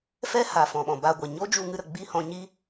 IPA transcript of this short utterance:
f ɛ˦ h a˨ f ɔ̃˨ ɓ ɔ̃˨ b a˧ ɡʷ ɛ˨ ɲ o˦ d͡ʒ u˧ ŋ ɨ˧ ɾ ə˨ ɡ͡b i˦˨ h ɔ̃˧ ɲ i˦

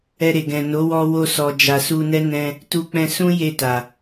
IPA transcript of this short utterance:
ɛ˧ ɾ e˨ ɡ ɛ̃˨ n o˨˦ w ɔ˧ w o˧ s ɔ˨ d͡ʒ a˨ s u˧ n ɛ˦ n ɛ̃˧ | t u˧ k͡p ɛ̃˧ s ũ˦ j e˦˨ t a˨

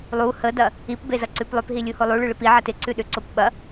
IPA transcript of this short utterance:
lˠ u h ə d ɐ | i p b e z ɐ ǀ ʉ p lˠ ʏ p ɦ i lʲ u h o lˠ u ɭ ʉ ɭ ɪ p i ʕ ɐ t ɪ ǀ ʉ ɗ ʏ ǀ o p ɓ ɐ

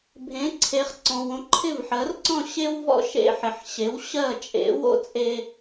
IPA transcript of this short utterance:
bʱ ẽ˩˥ ǀʰ e˩˥ χ ǀ ɔ̃˩ w õ˧ ǃʰ ɪ˥˩ v ħ ɜ˩˥ r ǀ ɔ̃˥˩ ɕ e˥ w v ɔ̰˥ ʃ ḛ˧ ħ ɪ˩ ħ ɕ e˩˥ w ɕ ɜ˥˩ t͡ʃʼ ḛ˩˥ w o̰˥ t͡sʼ e˧

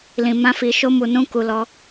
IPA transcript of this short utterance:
l ĩ˧ m ã˦ f i˧ ʃ o˦ m u˧ n ũ˦ k u˧ l ɔ˦

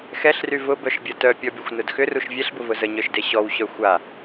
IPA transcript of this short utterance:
x ɛ ɬ r y v ʊ b œ ʃ bʲ ɐ t œ pʲ ɔ bʲ ɐ xʷ n ʊ d x ʏ r u ʃ vʲ ɛ ɬ b ʊ v ʊ z ə ɲ œ ʃ d e ɕ ɔ w ɕ œ xʷ a

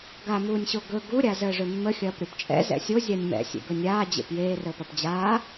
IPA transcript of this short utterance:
ɡ a m uː nʲ ɕ o ɡ ɵ ɡ u ɾʲ a z əː ʐ ɵ mː ə xʲ ɐː p ɾʲ o p t͡ʃʼ ɛ̰ z ɛ̰ sʲ o zʲ a nʲ m ɛ̰ sʲ ḛ ɡ ɵ nʲ aː d͡ʑ ḛ p j eː r əː p ɐ p d͡ʑ aː

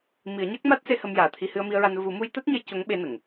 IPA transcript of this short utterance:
m i˨˩˦ ə̯ ɲ a˦˥ k̚ m a˦˥ t̚ s e˧ h ə˧ m j aː˨˩ t̪ʰ i˧ h ɨ˧ ə̯ m i˧ ə̯ ɹ a˧ n v u˨˩˦ m u˧ j t̪ a˦˥ t̚ ɲ ə˧ j c o˧˥ ŋ ɓ e˧ n ə˨˩˨ ŋ

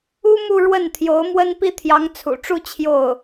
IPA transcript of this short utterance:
u˥ m u˥˧ ɻ w ə˥˩ n t̪ʰ j o˧˥ ʊ̯ m w ə˥ n p i˥ t̪ʰ j ɑ˧˥ ŋ t͡sʰ ṵ˨˩ ʈ͡ʂ u˥˧ t͡ɕʰ j o˥˩ ʊ̯

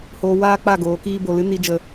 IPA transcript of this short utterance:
h oː˧ w aː˦ k͡p a˦˨ ɡ oː˨˦ k iː˦ b o˧ l ɨ˦ n i˦ d͡ʒ ə˦

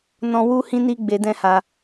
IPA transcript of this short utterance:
n ɔ̃˧ w u˦ h ĩ˦ n i˦ ɡ͡b e˧ d ɛ̃˦ h a˧

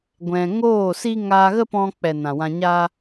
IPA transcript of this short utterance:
ɡʷ ɛ̃˧ ŋ oː˦˨ s i˦ ŋ aː˧ ɣ ə˦ p ɔ̃˧ k͡p ɛ˨ n ã˨ w ã˧ ɲ a˦

